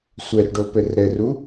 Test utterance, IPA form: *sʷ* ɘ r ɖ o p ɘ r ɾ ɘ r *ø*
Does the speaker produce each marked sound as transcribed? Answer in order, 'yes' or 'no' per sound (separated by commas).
yes, no